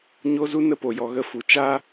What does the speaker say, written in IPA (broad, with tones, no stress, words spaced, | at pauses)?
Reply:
ɲo˦zu˦nə˦ po˨jɔ˨ɣə˧fu˨ t͡ʃa˦